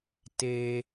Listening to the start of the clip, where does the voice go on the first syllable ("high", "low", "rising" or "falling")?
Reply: low